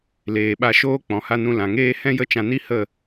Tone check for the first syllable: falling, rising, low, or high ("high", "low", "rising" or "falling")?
low